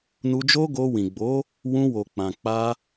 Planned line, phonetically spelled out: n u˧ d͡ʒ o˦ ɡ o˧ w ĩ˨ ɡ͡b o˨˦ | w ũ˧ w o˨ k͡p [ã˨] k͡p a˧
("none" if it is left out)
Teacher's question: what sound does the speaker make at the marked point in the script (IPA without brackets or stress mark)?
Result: ã˨